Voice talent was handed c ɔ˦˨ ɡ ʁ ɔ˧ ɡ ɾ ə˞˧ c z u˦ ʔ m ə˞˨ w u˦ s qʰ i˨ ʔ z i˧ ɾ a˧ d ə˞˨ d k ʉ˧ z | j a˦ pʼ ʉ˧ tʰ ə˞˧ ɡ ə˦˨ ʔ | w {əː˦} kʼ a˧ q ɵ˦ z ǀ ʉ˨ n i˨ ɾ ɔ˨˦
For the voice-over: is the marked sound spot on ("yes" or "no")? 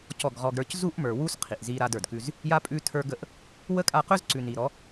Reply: no